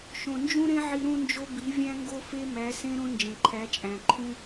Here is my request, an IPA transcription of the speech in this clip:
ʃ õ˨ n d͡ʒ ũ˦ ɾ ẽ˦ ʕ i˧ ɾ ũ˦ n d͡ʒ o˦ b i˨˦ vʲ æ̃˦ ŋ ɡ o˦ f e˦ m æ˨˦ s ẽ˦ ɾ õ˦ n d͡ʒ ẽ˨ ǃʰ æ˨˦ t͡ʃʼ æ̃˨ ǃʰ ũ˦

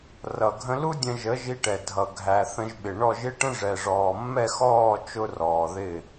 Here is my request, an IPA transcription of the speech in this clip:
r ʌ˨ ɡʱ ə̃˧ l u˦ dʲ ə̃˧ ʒ ə˨˦ ʒ i˧ ʈ ɛ˨ dʱ ʌ˨ ɡʱ æ˨ θ ə̃˧ ʒ ɓ ɪ˨ ɳ ɔ˦˨ ʒ ɪ˦ ʈ ə̃˦ ʐ ɛ˨ ʐ ɔː˨ mː ɛ˦˨ x ɔː˦˨ t͡ʃ ʊ˦ r ɔː˨ ð ɪ˦˨

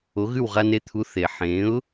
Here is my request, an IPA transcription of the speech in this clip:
o˩˥ ɣ ʉ˥˩ w ʁ a˧ n e˧ t̪ʰ u˩˥ θ e˩ ħ ẽ˩˥ ʊ̯

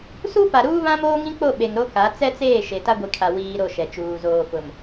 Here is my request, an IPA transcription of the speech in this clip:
s u˦ p a˨ ɾ uː˦ β ã˦ m oː˦ ŋ ĩ˦ k͡p o˦˨ ɓ e˨ ŋ ɾ o˦ k a˨˦ t͡s ɛ˦ t͡s eː˦˨ ʃ e˨ t a˦ ɡʷ i˨ kʰ a˨ w iː˦ ɾ o˦˨ ʃ ɛ˨ t͡ʃ uː˨ z oː˨ f ʊ˨ m

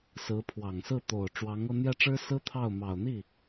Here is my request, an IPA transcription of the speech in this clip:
s ɹ̩˧˥ pʰ w ɑ˨˩ ŋ s ɹ̩˥˩ t̪ o˨˩ ʊ̯ ʈ͡ʂ w ɑ˧˥ ŋ ɤ˥˧ n̪ j ɛ˥˩ ʈ͡ʂ ɻ̩˥ s ɹ̩˥ t̪ʰ ɑ˥˩ ʊ̯ m ɑ˨˩ ʊ̯ n̪ i˥˩

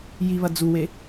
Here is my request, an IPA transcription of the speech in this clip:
j i β ɐ d͡z u w e

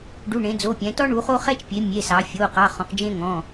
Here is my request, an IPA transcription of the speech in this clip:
ɖ u˩˧˩ ɳ ẽ˩˧ d͡z o˩˧˩ pʲ ɛ̃˩˧ t ɔ˦ ɳ u˩˧ χ o˦ χ ɛ˦ t͡ʃ pʲ e˩˧ mʲ e˩˧˩ s ɑ˩˧ fʲ o˩˧˩ q ɑ˩˧˩ χ ɔ̃˩˧ q d͡ʒ ẽ˦ ŋ ɔ̃˩˧˩

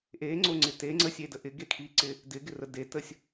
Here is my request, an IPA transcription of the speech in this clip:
ʔ e ŋ͡ǀ o ŋ͡ǀ ɪ t e ŋ͡ǀ ə sʲ e d ə ʔ ɪ ɡ e kʰ i ǀ ɪ | d ɪ ɡ ɪ r ə d e t ə sʲ

